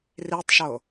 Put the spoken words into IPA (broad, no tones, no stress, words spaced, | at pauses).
ritˤʃo